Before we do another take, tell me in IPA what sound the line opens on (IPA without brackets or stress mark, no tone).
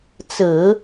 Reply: t͡s